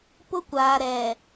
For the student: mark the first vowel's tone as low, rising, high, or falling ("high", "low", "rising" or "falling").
high